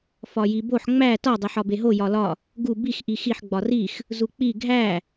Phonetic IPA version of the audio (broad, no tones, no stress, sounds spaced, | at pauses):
f ɒ j i b o ħ ŋ͡m æ t ɒ dˤ e ħ ɒ b e ɦ o j ɒ l ɒ | ɡ u b i x ʔ i x i ħ ɡ͡b ɒ r i x | z u k͡p i ɡʱ æ